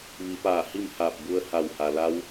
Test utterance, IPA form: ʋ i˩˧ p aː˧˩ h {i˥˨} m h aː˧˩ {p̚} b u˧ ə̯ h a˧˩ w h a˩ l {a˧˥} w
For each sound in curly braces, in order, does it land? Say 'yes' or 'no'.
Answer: yes, yes, yes

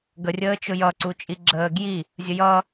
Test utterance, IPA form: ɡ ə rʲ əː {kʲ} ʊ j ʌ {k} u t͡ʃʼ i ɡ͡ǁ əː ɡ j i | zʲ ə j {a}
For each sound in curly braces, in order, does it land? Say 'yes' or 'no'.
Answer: no, no, no

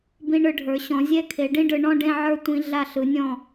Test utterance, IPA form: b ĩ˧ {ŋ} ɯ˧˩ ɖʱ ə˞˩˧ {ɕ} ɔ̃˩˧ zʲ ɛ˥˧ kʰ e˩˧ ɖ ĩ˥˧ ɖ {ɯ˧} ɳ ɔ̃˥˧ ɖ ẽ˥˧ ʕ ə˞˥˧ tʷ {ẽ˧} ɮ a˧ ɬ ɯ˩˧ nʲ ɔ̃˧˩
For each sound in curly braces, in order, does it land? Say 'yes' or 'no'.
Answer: no, yes, no, no

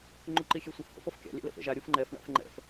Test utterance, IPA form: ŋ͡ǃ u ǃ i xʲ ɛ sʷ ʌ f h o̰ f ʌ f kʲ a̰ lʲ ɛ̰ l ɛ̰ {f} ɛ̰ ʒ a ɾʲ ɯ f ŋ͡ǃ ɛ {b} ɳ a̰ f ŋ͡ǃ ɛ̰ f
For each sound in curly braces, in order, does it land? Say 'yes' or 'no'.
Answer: yes, no

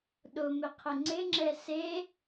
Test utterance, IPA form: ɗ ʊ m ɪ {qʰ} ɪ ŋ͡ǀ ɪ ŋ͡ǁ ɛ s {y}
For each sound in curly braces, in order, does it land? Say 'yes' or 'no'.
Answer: yes, no

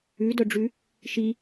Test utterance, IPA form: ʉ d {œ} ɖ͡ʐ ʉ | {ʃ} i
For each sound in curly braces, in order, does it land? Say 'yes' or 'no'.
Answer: yes, yes

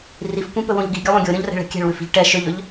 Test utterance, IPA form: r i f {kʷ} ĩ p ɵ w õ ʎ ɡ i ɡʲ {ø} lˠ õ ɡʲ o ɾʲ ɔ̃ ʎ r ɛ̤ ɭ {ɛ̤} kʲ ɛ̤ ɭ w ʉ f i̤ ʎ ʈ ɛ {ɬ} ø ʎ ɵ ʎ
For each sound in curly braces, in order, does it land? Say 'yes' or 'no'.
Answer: yes, no, yes, no

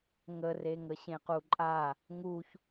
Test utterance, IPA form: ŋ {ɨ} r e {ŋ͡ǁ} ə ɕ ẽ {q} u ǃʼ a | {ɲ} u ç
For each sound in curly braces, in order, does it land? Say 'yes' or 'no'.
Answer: no, no, yes, no

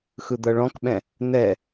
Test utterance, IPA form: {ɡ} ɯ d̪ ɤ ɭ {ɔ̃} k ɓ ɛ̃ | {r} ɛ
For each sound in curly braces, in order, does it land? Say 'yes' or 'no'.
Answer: no, yes, no

